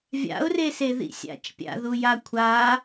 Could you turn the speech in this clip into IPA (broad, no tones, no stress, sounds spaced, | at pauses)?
vʲ a̰ ʊ̯ r e s e ð ḭ sʲ a̰ t͡ʃ pʲ a̰ ð u j a kʷʰ a